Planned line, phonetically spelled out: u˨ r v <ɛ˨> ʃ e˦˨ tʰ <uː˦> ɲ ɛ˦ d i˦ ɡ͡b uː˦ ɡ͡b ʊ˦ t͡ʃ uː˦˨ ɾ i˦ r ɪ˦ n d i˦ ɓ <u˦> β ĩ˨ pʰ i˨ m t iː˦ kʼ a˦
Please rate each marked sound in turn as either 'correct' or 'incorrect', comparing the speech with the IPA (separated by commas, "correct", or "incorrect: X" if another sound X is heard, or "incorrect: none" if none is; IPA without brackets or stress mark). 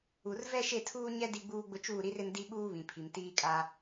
incorrect: ɛ˦, correct, incorrect: uː˦